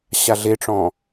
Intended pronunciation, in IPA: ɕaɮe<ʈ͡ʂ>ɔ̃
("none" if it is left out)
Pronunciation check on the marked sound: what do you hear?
ʈ͡ʂ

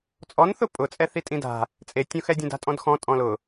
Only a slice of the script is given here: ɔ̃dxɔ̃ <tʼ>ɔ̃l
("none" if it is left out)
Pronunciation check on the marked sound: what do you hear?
tʼ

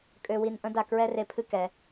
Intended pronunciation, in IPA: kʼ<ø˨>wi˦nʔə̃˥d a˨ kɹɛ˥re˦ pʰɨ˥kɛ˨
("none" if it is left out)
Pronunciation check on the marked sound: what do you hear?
ø˦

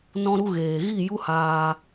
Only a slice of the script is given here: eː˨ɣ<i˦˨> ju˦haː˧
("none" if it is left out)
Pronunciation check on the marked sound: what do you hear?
i˦˨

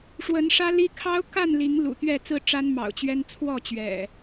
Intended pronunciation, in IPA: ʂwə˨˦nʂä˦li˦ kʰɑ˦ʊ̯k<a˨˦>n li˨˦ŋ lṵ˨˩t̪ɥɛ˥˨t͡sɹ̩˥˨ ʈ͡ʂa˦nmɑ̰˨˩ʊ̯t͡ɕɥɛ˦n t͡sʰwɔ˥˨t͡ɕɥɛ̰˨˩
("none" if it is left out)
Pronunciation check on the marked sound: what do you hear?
a˥˨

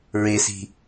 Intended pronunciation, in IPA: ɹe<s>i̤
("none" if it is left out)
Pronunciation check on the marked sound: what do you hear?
s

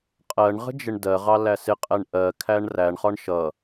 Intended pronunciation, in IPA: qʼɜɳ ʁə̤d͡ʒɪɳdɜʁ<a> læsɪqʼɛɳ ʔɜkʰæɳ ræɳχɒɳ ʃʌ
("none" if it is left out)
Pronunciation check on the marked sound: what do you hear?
ɑ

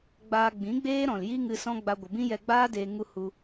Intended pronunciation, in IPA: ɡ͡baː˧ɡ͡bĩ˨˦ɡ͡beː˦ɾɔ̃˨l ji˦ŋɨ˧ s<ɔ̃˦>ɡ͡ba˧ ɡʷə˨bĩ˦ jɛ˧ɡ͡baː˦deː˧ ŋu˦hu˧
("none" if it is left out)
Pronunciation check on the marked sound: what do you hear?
ɔ̃˦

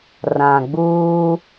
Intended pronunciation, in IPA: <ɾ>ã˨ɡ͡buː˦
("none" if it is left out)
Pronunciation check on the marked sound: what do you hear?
r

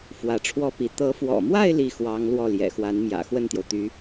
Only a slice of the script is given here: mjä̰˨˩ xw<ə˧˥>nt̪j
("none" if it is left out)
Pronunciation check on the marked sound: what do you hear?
ə˥˩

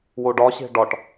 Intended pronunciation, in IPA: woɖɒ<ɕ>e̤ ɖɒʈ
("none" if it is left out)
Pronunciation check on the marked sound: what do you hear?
ɕ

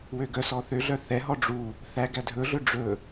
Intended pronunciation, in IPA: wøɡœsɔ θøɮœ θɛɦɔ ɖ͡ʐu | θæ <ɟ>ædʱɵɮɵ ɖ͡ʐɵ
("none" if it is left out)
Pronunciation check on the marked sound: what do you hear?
ɡ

